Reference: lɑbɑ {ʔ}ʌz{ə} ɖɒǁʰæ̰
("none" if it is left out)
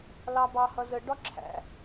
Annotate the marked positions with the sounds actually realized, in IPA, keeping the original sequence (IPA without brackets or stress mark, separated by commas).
h, ə